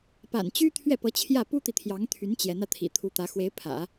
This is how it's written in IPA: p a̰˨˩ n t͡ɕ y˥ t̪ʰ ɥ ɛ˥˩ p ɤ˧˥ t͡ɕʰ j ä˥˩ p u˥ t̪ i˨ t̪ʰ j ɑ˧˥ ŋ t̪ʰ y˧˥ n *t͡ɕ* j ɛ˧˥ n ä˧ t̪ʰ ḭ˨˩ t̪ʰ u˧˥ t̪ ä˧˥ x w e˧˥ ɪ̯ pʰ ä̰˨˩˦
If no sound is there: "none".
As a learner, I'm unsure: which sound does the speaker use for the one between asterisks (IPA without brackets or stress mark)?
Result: t͡ɕ